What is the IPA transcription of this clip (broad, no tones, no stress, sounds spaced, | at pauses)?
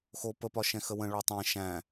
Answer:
x o p ə p ɒ ʃ ɛ̃ x ə w ə̃ ɭ o tˤ ɛ̃ ʃ æ̃